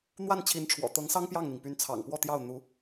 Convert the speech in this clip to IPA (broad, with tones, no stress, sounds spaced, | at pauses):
n̪ w a˥˩ n t͡ɕʰ i˧˥ n ʈ͡ʂʰ w ɔ̰˨˩ t̪ ɤ˧˥ ŋ s ɑ˥ ŋ p j ɑ˥˩ ŋ n̪ i˩ ŋ p y˧˥ n t͡sʰ ɑ̰˨˩ ŋ p w ɔ˥˧ t̪ j ɑ˥˩ ʊ̯ n̪ u˧˥